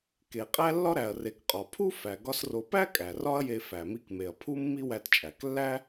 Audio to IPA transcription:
k e˩ qʼ æ˥ lː ɒ˥ ɾ æ˩ ɐ̯ r e˩ k qʼ ɒ˩ pʰ u˥ f æ˩ ɡ ɒ˥ s r o˧ p æ˥ kʼ æ˩ r ɒ˥ ɐ̯ j e˧ f æ˩ m i˧ k m e˩ ɐ̯ pʰ u˥ mː i˥ w æ˧ t t͡ʃʼ æ˩ k lː æ˥

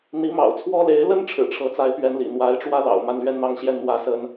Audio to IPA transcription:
n̪ i˧˥ m ɑ̰˨˩ ʊ̯ t͡sʰ w ɔ˥ l e˧˥ ɪ̯ l ə˥ n ʈ͡ʂʰ ɻ̩˨˩ ʈ͡ʂʰ ɤ˧˥ t͡s a˧˥ ɪ̯ p ɥ ɛ˧˥ n l ḭ˨˩ n̪ w a˧˥ ɪ̯ ʈ͡ʂ w ä˥ l ɑ̰˨˩ ʊ̯ m a˥˧ n l ɥ ɛ˥˧ n n̪ ɑ˥˧ ŋ ɕ j ɛ˥˩ n n̪ w ä˥ s ə˥ n

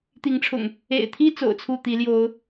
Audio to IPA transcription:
t̪ i˨˦ ŋ ʈ͡ʂʰ ʊ̰˨˩ ŋ | ḛ˨˩ ɪ̯ t̪ʰ i˦ t͡s o̰˨˩ ʊ̯ t͡sʰ u˥˨ t̪ i˨˦ l j o˨˦ ʊ̯

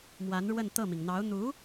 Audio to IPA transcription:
m w a˧˥ n ɻ w ə˥˧ n t̪ ɤ˥˩ m i˩ ŋ n̪ ɑ˧˥ ʊ̯ n̪ u˧˥

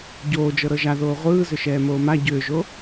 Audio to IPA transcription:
ɟ oː d͡ʒ ɤ ɾ ɤ ʒ a ð oː ʁʷ ɯː z ʏ ʃ ɛː m oː m a ɟ ʏː ʒ o

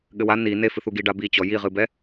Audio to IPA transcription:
ɠ ɘ w a n i n e f ɨ θ u ɡ i ɖ a b i t͡ɕ ɔ j i ʁ ɨ b ɛ

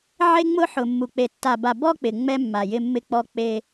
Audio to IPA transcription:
ʕ e˦ ŋ͡m ʊ˦ ħ ʊ˨ mː u˨ k͡p e˨ tː a˨ b a˨ b ɔ˦ k͡p ɪ˨ ŋ͡m ɛ˦ mː a˨ j ɪ˦ mː ɪ˦ k͡p ɔ˦ k͡p e˦

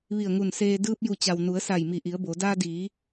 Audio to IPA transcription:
ʋ i˧˩ ə̯ ŋ u˧˩ n s eː˧ d ɯː˧ p̚ j u˧˩ t͡ɕ a˩ w n u˩˧ ə̯ s a˧˩ j m i˧˩ ʔ i˩˧ ə̯ b o˩˧ d aː˧ d iː˩˧

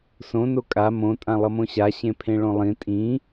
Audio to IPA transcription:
s õ n o kʼ a m õ tʼ ã lˠ ʌ m õ ɕ a ɕ ẽ pʰ ẽ ɭ õ lˠ ĩ tʼ ĩ

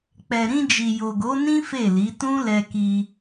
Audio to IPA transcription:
k͡p ɛ˨ ɾ ĩ˧ d͡ʒ i˨ j o˨ ɡ o˨˦ n ĩ˦ f e˦˨ l i˨˦ t ũ˦ l ɛ˧ k i˧

